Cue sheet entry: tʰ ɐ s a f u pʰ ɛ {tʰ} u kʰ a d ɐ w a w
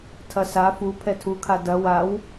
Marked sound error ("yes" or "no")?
no